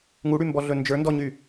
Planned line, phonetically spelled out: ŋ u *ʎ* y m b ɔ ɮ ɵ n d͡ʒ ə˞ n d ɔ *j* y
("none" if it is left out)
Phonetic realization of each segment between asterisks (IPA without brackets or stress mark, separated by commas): ɽ, ɲ